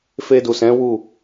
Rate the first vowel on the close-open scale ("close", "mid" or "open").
mid